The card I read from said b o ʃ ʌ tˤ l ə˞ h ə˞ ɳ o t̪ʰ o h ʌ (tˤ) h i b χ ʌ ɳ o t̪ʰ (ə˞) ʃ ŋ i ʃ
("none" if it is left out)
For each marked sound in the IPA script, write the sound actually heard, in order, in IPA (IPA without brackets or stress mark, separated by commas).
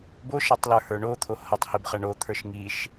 tˤ, ə˞